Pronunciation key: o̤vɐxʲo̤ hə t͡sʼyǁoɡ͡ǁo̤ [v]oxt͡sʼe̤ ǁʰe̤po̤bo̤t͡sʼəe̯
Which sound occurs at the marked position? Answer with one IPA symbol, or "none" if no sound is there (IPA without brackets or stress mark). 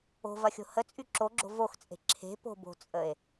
v